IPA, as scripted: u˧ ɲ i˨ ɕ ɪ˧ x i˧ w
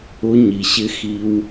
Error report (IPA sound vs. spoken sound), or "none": u˧ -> ʊ˧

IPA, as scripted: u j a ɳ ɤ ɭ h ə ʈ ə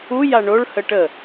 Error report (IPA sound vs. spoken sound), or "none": ɤ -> o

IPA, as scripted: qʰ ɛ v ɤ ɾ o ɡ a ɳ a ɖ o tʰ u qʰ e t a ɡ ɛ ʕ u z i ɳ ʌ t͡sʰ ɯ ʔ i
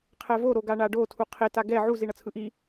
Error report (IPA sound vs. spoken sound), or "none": ɤ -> o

